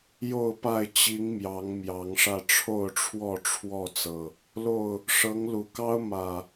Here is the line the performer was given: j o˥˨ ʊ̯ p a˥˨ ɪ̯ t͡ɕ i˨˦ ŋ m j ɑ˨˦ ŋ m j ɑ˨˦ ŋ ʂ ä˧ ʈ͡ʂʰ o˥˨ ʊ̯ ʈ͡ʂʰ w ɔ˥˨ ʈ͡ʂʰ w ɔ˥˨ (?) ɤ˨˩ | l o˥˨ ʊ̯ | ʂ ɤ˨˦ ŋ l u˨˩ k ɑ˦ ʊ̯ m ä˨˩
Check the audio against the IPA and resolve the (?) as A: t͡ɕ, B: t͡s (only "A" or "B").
B